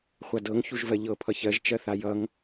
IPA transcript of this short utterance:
χʷadɤŋ çuʒvɜʎɤ pʰʌçɜʒ t͡ʃɜθajʌŋ

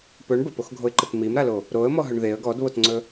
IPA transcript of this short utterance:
pɵɳ bəpoxɡʱoɪ̯ǃət mimɾalo | ɾoə̯mɔɦɵɳ ðeə̯ ɡɔdβotŋ͡ǀɵ

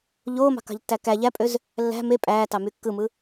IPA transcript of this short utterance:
ʎoːmɑ̤kɑ̤ʎtːæ kæ ʎæpʼøz | lːæ̤ me pʼæːtɑmy kːɯmɯ

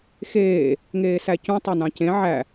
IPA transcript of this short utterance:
xeː | ŋeːsæcũ tˤønɑ̃cẽ ʕæ

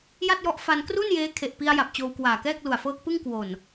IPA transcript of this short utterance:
ja˥˩t̚jɔ˦˥ʔ fa˧nkru˥˩n jeː˦˥ kʰe˨˩ʔpi˧a̯ja˨˩p̚ t͡ɕoː˧wkwaː˨˩kɛː˥˩k̚lu˨˩a̯ fɤː˦˥k̚pɯ˥˩ŋkwo˨˩n

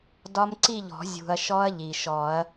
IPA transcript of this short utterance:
dɒ˦˥mǀi˥˧ʎɔ̤˨˩˦ zʲṳ˩ɐ̯ ʃɔ˦˥ɐ̯ʎi˩ʃɔ˨˩˦ɐ̯

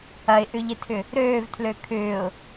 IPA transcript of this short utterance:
ɐɪ̯ʔʏʎɪtʰʏ | ɾøːvtʰlø kʰʏːʊ̯

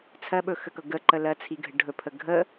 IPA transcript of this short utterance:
t͡sʰɜɓɵxəkɤ ɡəǃə lɜt͡sʰiɡʱə ɖʱɵpʰə ɡʱə

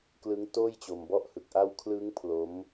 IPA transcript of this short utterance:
klɯ˦˥ŋ toː˥˩jt͡ɕo˧mbɔ˥˩ʔ hɯ˨˩k̚ʔa˧w kʰlɯ˦˥ŋ pʰlo˦˥m

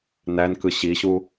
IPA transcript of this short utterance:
nænkɯ ɕiɕu

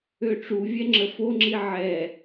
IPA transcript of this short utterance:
øʈ͡ʂuvʲɛ ŋ͡ǁəfoŋ͡ǁi ʕɛ

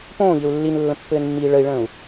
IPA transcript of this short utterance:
põːʎɘu̯ lːinlːə̃pːɘːnmːiː ɭəi̯ɭə̃ːu̯

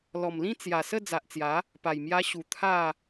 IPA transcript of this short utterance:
lɔ˨˩mlĩ˥˧ t͡sja˨˩sə˥˧ d͡za˨ʔt͡sja˨˦ | pa˨˩jmja˧ɕu˨˩ t̪ʰa˥˧

